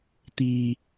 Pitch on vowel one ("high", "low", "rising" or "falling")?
low